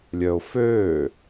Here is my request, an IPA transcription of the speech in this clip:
lʲœʊ̯føː

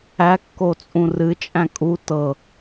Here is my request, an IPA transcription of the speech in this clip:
ækːo t͡sʼũrɨt͡ʃʼæ̃ kʼu tɤ

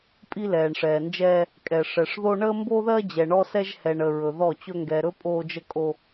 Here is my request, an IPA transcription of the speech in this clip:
pʼi˦lɛː˨ɳʂɛː˨nd͡ʒɛː˦ | kʼɛ˨ʂɛ˨ʂ ðo˦ ɳəː˦mbo˦ðɜ˦ d͡ʑɛ˨ɳɔ˦sɛ˦ʒ hɛ˨ɳə˨ ɹɵ˨ðɔ˦˨t͡ɕɵ˦ ŋɡɛ˨ɾɵ˦ pʼoː˦d͡ʒə˦kʼo˦

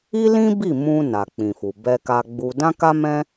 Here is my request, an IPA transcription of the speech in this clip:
i˦lĩ˦bi˦˨ mũ˧ na˨k͡pĩ˨fu˨ bɛ˧ka˧ɡ͡bu˧ dã˦ka˦mɛ̃˦

